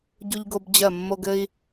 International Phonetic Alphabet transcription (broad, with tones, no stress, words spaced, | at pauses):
ɟu˧ʎɡo˧b d͡ʑɜ˧˩mːo˧ɡɘ˧i̯